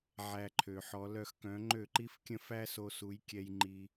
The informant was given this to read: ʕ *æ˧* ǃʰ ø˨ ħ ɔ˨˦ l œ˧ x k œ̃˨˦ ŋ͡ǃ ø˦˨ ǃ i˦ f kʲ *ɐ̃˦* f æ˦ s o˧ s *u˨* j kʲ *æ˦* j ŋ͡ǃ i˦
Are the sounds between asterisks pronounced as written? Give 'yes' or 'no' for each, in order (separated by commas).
yes, no, no, no